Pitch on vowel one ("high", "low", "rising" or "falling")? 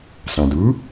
low